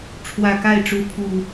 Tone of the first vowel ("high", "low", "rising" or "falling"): low